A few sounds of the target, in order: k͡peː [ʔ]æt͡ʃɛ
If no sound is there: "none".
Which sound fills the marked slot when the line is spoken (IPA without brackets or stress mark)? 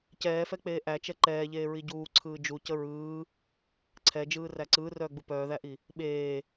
ʔ